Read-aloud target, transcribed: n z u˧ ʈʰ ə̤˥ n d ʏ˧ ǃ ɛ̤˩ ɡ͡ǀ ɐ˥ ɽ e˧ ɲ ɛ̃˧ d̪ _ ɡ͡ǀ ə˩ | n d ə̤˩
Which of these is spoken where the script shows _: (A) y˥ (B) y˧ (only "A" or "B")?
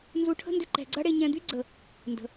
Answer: A